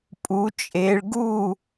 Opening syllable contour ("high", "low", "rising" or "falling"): rising